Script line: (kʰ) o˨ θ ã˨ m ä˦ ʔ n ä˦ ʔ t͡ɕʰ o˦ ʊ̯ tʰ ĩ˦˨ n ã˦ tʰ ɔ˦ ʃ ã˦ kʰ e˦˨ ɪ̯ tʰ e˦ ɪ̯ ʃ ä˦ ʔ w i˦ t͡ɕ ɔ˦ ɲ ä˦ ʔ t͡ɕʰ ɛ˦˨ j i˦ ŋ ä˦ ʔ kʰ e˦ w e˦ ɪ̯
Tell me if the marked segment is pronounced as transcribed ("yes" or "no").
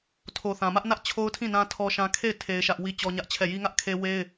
no